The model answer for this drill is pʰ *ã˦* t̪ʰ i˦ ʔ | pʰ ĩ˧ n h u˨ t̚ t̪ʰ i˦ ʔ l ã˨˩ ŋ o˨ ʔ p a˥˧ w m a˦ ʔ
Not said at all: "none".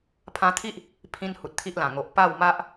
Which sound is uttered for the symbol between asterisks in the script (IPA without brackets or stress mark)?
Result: ã˧